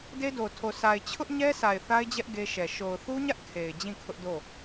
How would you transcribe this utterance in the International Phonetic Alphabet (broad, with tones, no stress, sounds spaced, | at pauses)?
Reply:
d e˦ d o˨ tʰ o˨ sʰ a˨ ɪ̯ t͡ɕʰ ʊ˦ ʔ ɲ ɛ˦ s a˨ ɪ̯ θ a˦ ɪ̯ d͡ʑ ɛ˦ ʔ ɡ e˦ ʃ ɛ˨ ʃ o˨ ʊ̯ θ u˦ ɲ ä˦ ʔ kʰ e˨ ɪ̯ d͡ʑ ĩ˦˨ kʰ ʊ˦ ʔ d o˦˨